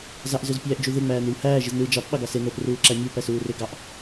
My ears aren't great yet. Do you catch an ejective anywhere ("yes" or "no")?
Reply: no